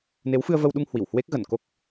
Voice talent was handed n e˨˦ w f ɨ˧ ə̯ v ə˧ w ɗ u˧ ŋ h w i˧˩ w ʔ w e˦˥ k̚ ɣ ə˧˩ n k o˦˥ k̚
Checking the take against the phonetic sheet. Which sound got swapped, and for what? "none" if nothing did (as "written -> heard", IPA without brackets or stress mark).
ʔ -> h